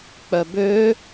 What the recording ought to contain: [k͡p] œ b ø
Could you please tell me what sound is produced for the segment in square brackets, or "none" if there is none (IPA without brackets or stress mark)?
k͡p